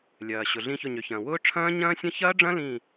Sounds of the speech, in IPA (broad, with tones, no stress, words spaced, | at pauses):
lʲɐː˩ ɕʊ˩ ɮĩ˧˩çʊ˧˩ɲø˩çɐ̃ː˩ wʊː˦˥ʈ͡ʂʰɐ̃ː˦˥ ɲɐ̃ː˦˥sʲɐ̃˦˥ çɐː˦˥ɖ͡ʐɐ̃˦˥ lĩ˧˩